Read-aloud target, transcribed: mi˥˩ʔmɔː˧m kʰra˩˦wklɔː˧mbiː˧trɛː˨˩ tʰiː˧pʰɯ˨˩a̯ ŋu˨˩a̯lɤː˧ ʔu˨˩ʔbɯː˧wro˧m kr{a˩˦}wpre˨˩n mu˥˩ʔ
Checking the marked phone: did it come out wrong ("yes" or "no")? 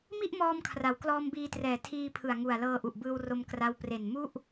yes